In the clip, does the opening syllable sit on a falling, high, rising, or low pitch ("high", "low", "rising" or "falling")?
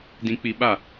low